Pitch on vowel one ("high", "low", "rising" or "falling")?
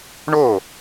falling